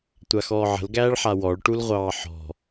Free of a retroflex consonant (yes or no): no